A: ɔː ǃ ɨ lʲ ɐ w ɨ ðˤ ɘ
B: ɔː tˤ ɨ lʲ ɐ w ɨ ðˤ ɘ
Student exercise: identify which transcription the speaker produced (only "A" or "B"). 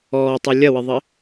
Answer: B